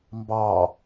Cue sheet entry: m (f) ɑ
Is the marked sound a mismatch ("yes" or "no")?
yes